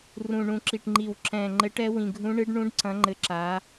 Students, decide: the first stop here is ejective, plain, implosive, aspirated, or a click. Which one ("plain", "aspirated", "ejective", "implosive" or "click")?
click